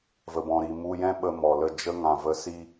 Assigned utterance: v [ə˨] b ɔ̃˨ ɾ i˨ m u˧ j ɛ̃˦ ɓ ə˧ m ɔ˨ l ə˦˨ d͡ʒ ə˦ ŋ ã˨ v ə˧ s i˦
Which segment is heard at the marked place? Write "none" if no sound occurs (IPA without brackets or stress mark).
ə˨